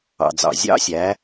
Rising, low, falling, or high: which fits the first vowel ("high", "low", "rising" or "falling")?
low